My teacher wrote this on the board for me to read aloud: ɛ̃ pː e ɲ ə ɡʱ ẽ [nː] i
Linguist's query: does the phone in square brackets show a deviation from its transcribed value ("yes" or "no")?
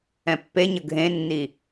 no